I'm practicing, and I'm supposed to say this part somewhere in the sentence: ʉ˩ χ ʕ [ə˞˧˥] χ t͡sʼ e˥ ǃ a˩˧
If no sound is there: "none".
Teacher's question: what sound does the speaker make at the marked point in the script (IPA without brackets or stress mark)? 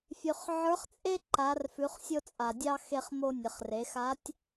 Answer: ə˞˧˥